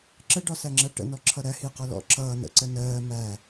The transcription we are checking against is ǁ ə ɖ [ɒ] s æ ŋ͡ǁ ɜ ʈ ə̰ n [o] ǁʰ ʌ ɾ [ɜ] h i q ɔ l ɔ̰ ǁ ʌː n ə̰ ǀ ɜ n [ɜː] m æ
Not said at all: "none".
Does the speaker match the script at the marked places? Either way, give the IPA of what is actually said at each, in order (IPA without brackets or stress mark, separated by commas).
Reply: ɒ, ɔ, æ, ɜː